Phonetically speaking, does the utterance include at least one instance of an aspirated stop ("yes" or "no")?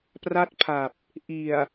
yes